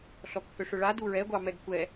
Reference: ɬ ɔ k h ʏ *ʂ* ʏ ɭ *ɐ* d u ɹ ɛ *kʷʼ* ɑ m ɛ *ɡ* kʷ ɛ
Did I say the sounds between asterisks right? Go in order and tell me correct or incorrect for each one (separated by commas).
correct, incorrect, incorrect, correct